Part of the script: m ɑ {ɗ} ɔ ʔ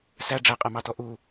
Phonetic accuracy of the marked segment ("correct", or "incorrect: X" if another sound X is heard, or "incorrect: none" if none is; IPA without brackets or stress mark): incorrect: t